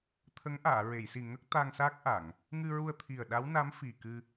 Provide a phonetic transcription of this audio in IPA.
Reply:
t̪ʰ ə˧˥ ŋ ʔ aː˨˩˨ ɹ e˨˩˨ j s i˨˩ ŋ ə˦˥ k̚ t̪ a˧ ŋ s a˦˥ k̚ ʔ a˨˩˨ ŋ | ŋ ɨ˧ ɹ u˧ ə̯ t̪ʰ i˨˩ ə̯ ɗ a˧˥ w n a˧˥ m f i˨˩ k ɨ˧

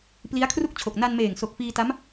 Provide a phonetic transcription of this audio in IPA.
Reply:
p l i˦˥ a̯ kʰ r u˥˩ k̚ t͡ɕʰ o˨˩ k̚ n a˧ n m eː˨˩ ŋ s o˨˩ k̚ f iː˧ t a˦˥ m

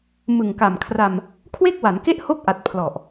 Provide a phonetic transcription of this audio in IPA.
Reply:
m ɯ˨˩ ŋ k a˨˩ m kʰ r a˧ m | kʰ w e˥˩ k̚ w a˩˦ n k e˥˩ ʔ h o˥˩ k̚ ʔ a˨˩ t̚ pʰ l ɔ˨˩ ʔ

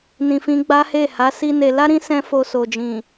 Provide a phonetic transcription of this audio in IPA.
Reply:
n ĩ˨ f ĩ˧ ɡ͡b a˦ h e˦˨ h a˨˦ s i˦ n e˧ l a˦ ɾ ĩ˦ s ɛ̃˦ f o˧ s o˨ d͡ʒ ĩ˨

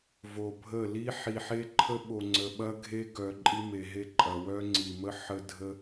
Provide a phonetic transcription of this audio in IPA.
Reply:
v o˨ bʱ ə˦˨ l i˦ ħ i˨ ħ e˦ ǃʰ ə˦ ɓ o˨ ŋ͡ǀ ə˨ ɓ ɐ˦ ɡʱ e˦ ɡ œ˨ ǃʼ i˦ m e˨ ɦ e˦ ǃʼ ɐ˨ w œ˦ ŋ͡ǀ i˨ m ə˦ ħ ə˦ dʱ ə˦

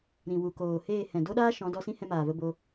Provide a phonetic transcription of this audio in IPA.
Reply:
ɾ ĩ˨ w u˨ k oː˨ h eː˦˨ h ɛ̃˨ d o˦ ɗ aː˦ ʃ ɔ̃˨˦ d ɔ˧ s ĩ˦ h ɛ̃˧ m aː˨ v ə˧ b o˧

